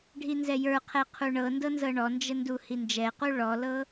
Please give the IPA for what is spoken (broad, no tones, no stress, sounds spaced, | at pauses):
ɖʱ i n z ɛ j ə˞ qʰ ɛ qʰ u ɳ ɤ n d ɤ n z ɤ ɳ ɔ n d͡ʒ ə n d u h i n d͡ʒ ɛ q u ɭ ɔ l ɤ